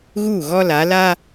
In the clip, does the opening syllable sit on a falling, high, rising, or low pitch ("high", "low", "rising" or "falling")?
falling